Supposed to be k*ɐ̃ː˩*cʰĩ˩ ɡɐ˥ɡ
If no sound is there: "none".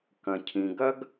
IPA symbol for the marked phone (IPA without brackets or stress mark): ɐ̃˩